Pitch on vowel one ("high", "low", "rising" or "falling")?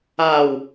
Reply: low